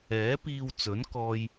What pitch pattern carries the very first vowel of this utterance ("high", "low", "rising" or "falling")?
rising